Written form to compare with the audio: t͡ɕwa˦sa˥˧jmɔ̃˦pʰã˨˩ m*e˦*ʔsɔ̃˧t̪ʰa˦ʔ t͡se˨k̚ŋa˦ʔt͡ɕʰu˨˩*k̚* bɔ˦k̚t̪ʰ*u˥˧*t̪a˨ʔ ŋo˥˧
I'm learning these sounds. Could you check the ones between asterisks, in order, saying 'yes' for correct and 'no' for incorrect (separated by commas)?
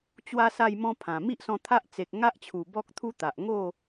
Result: no, no, no